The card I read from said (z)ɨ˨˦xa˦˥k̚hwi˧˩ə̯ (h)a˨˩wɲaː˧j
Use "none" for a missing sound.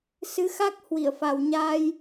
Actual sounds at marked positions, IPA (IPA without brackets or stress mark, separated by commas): s, f